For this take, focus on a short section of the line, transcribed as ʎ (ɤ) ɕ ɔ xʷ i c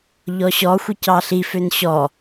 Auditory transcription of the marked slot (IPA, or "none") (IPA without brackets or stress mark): ɔ